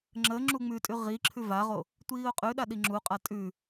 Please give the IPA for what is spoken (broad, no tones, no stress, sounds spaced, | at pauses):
ŋ͡ǁ ə ŋ͡ǁ u ŋ͡m ʉ tʼ ʉ ʁ i ǁʰ ʉ v a ʁ o | tʷ iː ʊ̯ qʼ ʉ ɗ a ɗ i ŋ͡ǁ u qʼ a tʼ ʉ